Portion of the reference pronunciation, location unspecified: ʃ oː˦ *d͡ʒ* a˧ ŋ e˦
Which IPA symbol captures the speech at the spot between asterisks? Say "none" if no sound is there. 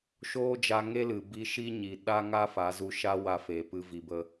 d͡ʒ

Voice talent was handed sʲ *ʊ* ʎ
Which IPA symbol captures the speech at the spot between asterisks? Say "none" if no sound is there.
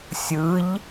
ɯ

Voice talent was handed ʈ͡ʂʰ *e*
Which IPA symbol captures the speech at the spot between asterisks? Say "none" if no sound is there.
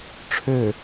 ø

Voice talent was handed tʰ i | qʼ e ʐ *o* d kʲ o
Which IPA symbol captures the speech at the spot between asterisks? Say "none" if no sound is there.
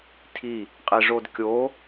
o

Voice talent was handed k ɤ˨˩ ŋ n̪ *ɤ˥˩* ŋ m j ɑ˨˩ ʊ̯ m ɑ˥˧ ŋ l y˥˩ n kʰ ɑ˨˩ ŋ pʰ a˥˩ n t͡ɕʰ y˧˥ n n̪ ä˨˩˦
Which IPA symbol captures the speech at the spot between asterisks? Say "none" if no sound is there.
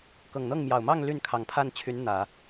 ɤ˥˩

